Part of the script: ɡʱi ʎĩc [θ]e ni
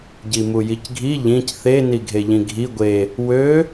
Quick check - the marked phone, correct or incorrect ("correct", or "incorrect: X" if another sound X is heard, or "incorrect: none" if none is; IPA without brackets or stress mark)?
correct